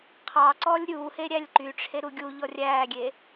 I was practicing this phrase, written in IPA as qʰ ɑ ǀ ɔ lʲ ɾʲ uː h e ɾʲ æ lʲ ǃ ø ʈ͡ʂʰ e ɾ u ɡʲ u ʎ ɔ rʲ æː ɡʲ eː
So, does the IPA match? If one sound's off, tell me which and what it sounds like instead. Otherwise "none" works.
ø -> y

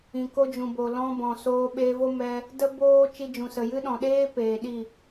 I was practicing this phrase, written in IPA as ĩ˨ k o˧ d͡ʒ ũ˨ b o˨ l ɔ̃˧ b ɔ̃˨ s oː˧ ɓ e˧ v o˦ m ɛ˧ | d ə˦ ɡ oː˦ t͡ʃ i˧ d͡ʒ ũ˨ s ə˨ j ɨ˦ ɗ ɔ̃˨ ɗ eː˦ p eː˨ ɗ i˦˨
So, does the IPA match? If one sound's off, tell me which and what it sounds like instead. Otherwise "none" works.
ɡ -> b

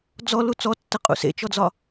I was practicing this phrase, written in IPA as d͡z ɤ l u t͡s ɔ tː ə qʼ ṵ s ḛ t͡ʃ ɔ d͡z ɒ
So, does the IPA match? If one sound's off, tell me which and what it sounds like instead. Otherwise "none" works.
ɤ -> ɔ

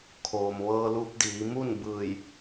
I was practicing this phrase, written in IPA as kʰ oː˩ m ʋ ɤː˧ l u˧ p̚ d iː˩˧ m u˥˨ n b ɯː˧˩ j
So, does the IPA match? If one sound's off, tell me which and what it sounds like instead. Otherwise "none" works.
none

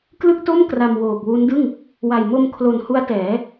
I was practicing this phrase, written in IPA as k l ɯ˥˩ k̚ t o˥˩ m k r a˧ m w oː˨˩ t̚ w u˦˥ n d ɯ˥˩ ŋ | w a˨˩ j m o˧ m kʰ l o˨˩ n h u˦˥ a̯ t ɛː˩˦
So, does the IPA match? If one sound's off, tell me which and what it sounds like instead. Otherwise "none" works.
t̚ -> k̚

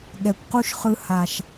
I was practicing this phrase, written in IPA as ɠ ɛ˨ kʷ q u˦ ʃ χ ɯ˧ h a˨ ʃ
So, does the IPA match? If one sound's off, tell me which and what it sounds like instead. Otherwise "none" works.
none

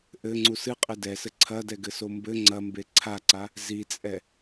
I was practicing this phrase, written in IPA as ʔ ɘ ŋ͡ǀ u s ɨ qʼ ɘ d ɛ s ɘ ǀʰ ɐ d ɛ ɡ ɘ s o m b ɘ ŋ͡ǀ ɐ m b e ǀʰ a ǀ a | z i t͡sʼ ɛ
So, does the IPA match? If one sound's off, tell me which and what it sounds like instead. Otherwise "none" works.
none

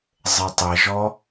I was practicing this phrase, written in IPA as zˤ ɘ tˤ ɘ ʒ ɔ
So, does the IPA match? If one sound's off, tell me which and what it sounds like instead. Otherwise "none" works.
none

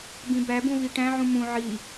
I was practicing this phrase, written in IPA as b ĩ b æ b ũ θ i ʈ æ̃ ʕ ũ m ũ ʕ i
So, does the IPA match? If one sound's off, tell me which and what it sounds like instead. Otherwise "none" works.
θ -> v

